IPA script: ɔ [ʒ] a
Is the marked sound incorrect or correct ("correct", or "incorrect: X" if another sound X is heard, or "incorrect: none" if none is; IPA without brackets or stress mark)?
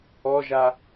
correct